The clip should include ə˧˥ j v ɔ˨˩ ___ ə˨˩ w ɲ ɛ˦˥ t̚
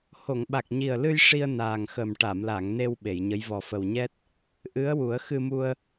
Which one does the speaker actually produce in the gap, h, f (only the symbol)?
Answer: f